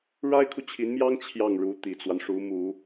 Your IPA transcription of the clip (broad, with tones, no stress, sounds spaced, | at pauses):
ɻ a˥ ɪ̯ kʰ u˨ t͡ɕʰ i˧˥ n m j ɑ˥ ŋ t͡ɕʰ j ɑ˥˩ ŋ ɻ u˧˥ t̪ i˨˩ t͡s w a˦ n ʂ u˧˥ m u˨˩˦